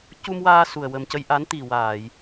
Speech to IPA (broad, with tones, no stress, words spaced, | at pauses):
cu˧mwaː˧ su˨˩ə̯ wə˨˩mcə˧jʔa˧˥n t̪i˨˩waː˨˩˨j